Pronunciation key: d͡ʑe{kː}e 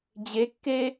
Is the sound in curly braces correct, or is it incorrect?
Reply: correct